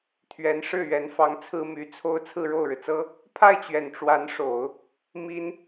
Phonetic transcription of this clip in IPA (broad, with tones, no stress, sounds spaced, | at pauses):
t̪ʰ ɥ ɛ˧˥ n ʂ ɻ̩˥˩ ɥ ɛ˧˥ n f ɑ˧˥ ŋ t͡sʰ ɹ̩˥ m y˧˥ t͡sʰ o˥˧ ʊ̯ t͡sʰ ɹ̩˥˧ ɻ o˥˩ ʊ̯ ɻ ɻ̩˩ t͡s ɤ˥ | pʰ a˥˩ ɪ̯ t͡ɕ ɥ ɛ˨˩ n ʈ͡ʂ w a˧˥ n ʂ o˨˩˦ ʊ̯ | m i˥ n